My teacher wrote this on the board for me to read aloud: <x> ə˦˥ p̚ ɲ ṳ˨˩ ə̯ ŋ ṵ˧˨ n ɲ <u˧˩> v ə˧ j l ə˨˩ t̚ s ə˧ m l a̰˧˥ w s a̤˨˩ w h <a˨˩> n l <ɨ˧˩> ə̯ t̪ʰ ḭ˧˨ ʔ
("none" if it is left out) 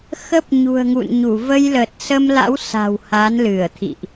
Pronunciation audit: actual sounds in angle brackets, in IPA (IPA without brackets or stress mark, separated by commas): x, u˧˩, a˨˦, ɨ˧˩